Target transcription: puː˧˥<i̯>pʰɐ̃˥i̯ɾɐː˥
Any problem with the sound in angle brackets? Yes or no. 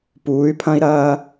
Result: yes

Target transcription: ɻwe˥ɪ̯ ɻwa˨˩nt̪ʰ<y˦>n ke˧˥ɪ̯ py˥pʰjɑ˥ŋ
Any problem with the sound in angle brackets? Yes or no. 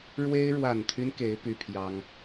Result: no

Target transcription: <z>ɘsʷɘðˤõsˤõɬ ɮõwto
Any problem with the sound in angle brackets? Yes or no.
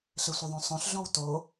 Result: yes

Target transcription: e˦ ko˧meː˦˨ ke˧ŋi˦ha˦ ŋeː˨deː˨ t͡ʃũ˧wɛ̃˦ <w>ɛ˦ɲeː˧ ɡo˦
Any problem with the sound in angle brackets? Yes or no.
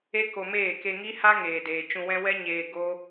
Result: no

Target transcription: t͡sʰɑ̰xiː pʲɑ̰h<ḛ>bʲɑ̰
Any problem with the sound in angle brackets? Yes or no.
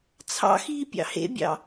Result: no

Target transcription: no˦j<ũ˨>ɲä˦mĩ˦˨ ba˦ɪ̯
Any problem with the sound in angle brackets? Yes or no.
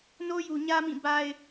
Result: yes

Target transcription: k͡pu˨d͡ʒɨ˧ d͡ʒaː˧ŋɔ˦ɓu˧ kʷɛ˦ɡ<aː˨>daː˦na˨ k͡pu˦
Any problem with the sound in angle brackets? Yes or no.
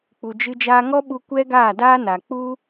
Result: yes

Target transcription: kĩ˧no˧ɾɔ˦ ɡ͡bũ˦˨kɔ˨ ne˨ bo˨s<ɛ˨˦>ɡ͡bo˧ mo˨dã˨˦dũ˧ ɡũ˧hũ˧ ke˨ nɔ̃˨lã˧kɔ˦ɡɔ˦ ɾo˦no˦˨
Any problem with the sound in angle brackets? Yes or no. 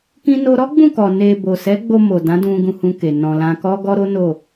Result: no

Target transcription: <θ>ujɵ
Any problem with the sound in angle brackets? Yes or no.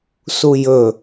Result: yes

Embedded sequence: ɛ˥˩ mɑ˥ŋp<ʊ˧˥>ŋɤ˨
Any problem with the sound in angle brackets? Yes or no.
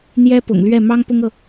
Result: yes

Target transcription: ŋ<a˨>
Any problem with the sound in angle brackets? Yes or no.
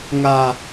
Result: yes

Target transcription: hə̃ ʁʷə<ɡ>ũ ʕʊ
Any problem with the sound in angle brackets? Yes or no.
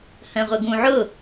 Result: no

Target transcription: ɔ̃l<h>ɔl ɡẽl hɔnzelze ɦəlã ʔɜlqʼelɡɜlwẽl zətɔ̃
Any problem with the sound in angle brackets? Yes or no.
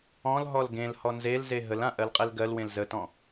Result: yes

